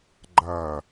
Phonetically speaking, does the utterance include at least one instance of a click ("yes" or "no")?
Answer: yes